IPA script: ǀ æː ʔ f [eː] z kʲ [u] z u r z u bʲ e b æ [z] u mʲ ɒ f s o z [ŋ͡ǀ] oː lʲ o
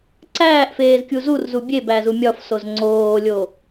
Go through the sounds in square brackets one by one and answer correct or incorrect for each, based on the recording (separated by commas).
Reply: correct, correct, correct, correct